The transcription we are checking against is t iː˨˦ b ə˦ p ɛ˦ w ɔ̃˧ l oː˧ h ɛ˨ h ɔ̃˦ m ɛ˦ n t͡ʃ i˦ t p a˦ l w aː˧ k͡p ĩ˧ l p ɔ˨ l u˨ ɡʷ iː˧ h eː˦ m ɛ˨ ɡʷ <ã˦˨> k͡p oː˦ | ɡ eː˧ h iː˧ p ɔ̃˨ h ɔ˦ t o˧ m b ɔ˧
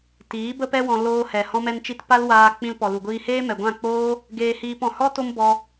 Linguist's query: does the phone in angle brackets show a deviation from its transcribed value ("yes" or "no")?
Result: no